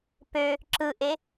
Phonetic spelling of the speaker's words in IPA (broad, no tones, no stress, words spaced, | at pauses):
pø | ǁɯʔe